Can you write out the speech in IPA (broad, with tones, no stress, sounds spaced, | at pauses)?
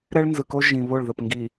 ɾ ɛ˦ ɭ n z ɯ˨ k o˦ ʒ ĩ˨ β o˦˨ ɭ ð ə˦˨ p ŋ ɡ i˨